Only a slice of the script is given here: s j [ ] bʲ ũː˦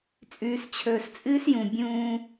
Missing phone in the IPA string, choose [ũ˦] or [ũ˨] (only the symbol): ũ˨